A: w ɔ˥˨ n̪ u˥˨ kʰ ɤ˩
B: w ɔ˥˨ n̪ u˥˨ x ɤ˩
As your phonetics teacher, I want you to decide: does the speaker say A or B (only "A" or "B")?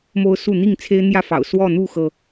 B